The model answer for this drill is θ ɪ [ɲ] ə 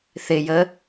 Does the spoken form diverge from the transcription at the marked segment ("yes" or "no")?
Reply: yes